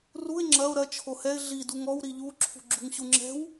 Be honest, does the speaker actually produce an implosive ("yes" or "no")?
no